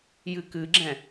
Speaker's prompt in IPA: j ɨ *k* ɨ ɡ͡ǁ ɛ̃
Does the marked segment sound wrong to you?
no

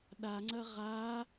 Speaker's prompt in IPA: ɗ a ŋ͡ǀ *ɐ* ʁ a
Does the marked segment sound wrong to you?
no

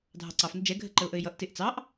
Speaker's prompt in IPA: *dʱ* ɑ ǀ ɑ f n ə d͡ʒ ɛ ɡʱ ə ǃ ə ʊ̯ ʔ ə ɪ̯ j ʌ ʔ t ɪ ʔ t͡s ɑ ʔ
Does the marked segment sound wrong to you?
no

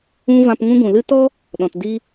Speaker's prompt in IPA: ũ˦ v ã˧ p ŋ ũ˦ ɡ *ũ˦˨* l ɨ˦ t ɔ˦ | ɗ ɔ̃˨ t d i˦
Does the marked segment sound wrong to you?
yes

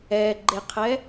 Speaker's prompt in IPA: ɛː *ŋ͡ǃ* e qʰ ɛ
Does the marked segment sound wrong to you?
yes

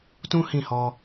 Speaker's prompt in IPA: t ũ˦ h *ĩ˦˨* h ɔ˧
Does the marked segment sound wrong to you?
no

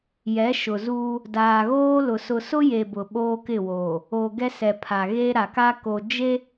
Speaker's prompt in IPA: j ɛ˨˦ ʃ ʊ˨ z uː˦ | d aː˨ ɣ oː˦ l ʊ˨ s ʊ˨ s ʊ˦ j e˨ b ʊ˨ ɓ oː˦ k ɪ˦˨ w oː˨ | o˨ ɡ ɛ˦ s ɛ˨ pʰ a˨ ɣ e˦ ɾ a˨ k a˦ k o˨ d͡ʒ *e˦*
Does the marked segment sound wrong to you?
no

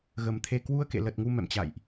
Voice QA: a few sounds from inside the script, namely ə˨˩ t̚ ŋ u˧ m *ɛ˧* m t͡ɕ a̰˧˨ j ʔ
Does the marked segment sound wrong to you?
yes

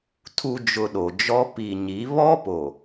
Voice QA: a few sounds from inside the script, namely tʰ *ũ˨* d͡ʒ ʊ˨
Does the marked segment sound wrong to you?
yes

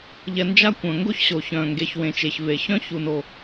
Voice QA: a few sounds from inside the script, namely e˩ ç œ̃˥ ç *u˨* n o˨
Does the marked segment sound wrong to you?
no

